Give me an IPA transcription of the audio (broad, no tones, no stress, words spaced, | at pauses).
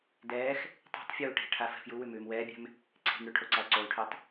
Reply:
dɛːx | tˤe̤tˤ fʲuːʈe̤ʈʰa fɛ̤fjuwʉ mʉːmwɛːbʲɛ̤m | ǀʰe̤mɽʉ ʈʰoǀalǀolʈʰʉtˤ